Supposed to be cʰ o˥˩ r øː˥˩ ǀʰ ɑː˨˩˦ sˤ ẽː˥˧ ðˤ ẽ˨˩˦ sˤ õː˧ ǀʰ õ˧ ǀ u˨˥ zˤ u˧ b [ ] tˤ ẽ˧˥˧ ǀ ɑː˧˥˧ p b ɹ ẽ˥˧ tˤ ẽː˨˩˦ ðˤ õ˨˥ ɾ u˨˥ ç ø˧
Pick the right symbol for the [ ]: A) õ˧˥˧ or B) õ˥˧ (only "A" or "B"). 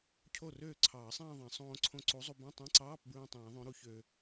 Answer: A